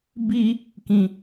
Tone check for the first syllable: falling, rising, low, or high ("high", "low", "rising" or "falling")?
high